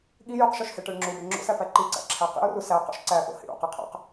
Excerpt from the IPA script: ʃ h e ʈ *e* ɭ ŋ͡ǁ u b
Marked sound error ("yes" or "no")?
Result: no